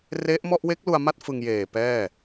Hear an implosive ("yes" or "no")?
no